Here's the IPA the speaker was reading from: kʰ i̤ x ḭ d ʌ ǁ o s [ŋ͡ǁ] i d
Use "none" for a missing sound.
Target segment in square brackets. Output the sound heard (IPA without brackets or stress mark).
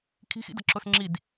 ŋ͡ǁ